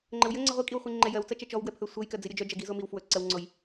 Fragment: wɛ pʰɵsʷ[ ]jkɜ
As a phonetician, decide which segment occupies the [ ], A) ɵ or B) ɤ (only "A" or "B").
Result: B